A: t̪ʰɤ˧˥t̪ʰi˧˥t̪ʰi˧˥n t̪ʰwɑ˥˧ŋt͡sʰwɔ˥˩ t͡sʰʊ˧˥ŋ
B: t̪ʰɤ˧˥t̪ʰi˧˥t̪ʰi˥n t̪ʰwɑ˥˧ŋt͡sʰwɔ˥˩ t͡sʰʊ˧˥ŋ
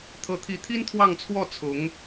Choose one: B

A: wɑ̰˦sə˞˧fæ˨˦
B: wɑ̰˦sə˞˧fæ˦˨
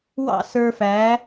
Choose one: A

